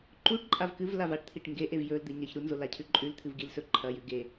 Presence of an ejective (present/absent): present